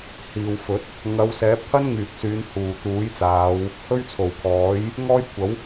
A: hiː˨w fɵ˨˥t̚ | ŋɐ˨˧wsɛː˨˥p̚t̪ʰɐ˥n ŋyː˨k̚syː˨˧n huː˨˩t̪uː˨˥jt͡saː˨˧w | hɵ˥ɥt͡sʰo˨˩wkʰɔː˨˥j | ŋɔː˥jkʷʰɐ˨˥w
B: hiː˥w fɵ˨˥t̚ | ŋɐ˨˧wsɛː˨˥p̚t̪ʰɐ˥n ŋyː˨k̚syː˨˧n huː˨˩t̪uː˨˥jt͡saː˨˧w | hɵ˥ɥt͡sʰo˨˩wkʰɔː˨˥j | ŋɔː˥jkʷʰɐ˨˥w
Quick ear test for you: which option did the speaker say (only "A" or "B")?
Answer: A